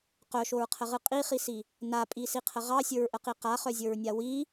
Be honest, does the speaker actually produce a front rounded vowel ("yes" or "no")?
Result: yes